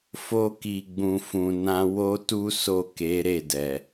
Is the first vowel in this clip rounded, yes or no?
yes